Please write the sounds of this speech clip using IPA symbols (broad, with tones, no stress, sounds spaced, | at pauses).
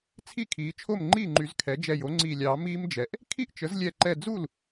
t͡sʰ i˥˩ kʰ iː˩˥ t͡ʃʰ o˥˩ m ŋ͡ǃ iː˥˩ ŋ͡ǃ y˨˩˦ z kʰ ɛ˩˥ d͡ʒ ɛ˧˩ j o˩˥ ŋ͡ǀ iː˧˩ lʲ ɑː˨˩˦ m iː˦˥ m d͡ʒ ɛ˩˥ ʔ | kʰ i˥˩ ʔ t͡ʃ ə˩˥ z lʲ ɛ˧˩ ǃ ɛ˧˩ d͡z u˥˩ l